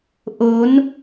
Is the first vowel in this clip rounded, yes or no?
yes